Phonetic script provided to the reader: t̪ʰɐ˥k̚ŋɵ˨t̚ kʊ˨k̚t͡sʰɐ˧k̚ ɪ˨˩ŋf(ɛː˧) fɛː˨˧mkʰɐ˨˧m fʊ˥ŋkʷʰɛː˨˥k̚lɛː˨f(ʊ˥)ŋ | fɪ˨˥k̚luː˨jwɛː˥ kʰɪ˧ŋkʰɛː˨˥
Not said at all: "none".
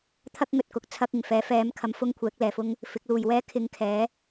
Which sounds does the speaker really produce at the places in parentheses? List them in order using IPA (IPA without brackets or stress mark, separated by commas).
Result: ɛː˨˥, ʊ˥